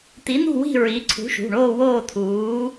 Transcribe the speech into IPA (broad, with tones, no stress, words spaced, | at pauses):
t̪i˨˥n̪ṳ˥˧wi̤˥˧ ɹi˨˥ ǀʰṳ˨˥ʃṳ˩˧˩ɳoː˥˧ woː˥˧t̪ʰuː˨˥